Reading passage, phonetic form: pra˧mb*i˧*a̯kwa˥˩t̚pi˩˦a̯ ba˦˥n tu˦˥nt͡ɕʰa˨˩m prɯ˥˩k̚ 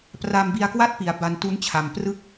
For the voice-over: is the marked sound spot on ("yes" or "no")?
yes